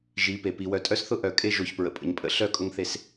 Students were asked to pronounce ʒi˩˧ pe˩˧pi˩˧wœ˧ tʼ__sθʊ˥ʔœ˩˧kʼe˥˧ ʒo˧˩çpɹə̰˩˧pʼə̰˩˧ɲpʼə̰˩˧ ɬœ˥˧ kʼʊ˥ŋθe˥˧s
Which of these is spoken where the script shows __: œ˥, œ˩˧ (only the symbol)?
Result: œ˥